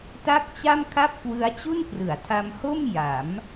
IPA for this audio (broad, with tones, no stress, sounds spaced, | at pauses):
t a˥˩ k̚ t͡ɕ a˥˩ m kʰ a˥˩ p̚ k w ɯ˦˥ a̯ t͡ɕ u˥˩ n k r ɯ˩˦ a̯ tʰ a˧ m h o˥˩ m j a˩˦ m